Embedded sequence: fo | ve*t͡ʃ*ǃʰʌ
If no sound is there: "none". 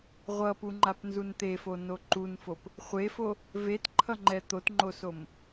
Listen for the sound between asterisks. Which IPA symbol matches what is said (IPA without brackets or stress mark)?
t